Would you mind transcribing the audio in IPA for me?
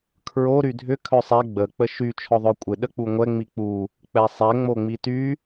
kʰ ɹ o ɾ y dʱ ʏ kʰ œ sˤ ɛ ɡ͡b ə k͡p ə ʃ y t͡ʃʰ ɔ ðˤ œ kʷʼ ɪ ɗ ə k͡p u ŋʷ ɛ ŋ͡m i k͡p u | k͡p ɛ sˤ ɛ ŋ͡m o ŋ͡m i t y

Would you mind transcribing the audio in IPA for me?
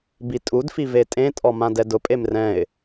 b i tʼ u d f i v e tʼ ẽ tʼ ɔ m ã d ɛ d ʊ pʼ e m r ɛ̃ ɪ̯

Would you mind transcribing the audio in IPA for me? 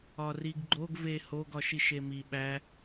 ɒ r i ɡ ɡ͡ǃ o ɡ v e h o ɡ ɒ ʃ i ʃ e m i ɓ æ

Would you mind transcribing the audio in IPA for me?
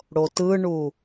ɽ o t ɯ ɳ u

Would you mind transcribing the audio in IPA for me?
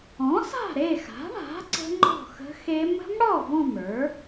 ɔ̃˩˥ s a̤˥˨ ɾ e˥˨ x a̤˩˥ ɳ a̤˩˥ ǀ ə̤˦˥ ŋ͡ǃ ɔ̤˥˨ x ə̤˦˥ x e˦˥ m ə̤˦˥ m ɽ ɔ˥˨ v ɔ̃˥˨ m ə˞˩˥

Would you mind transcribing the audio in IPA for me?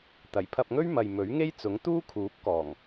t̪ ɐ˨˩ j pʰ ɐ˧ p̚ ŋ ɵ˥ ɥ m ɐ˨ j m ɵ˨˥ ɥ ŋ e˥ j t͡s ʊ˨˥ ŋ t̪ uː˥ kʰ uː˨˥ p̚ k ɔː˨˩ ŋ

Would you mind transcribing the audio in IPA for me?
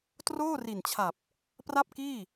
t r oː˥˩ r i˨˩ n t͡ɕʰ a˨˩ p̚ | p r a˥˩ p̚ k iː˥˩

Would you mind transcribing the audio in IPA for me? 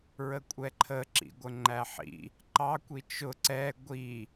ɹ ə kʷʼ ɛ ǃʰ ə ǁ ḭ ɡʷ ə ŋ͡ǃ æ ħ ḭ | ǃ ɑ kʷ i t͡ʃ ʊ ǀ ɛ ɡʷ i

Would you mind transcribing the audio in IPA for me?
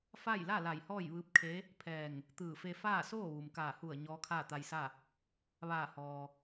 f a˥˨ j l a˥˨ l a˧˩ j h ɔː˥˨ j ʋ ɯː˧ p̚ kʰ e˧˥ | pʰ ɛː˧˩ ŋ | t̪ ɯː˧˩ f e˧ f aː˥˨ s oː˥˨ ʋ u˩ m k aː˧˩ h u˧˩ ə̯ ɲ ɔː˧˥ kʰ aː˥˨ t̪ a˧ j s a˥˨ | ʋ aː˧˩ h ɔː˩

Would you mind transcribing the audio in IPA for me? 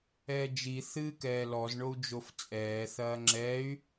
ɛː d͡ʒ i θ ɨː k ɛː l ɔ z ɳ o u̯ d͡ʒ o f t͡sʼ ɛː θ ɐː ŋ͡ǁ ɛː y̯

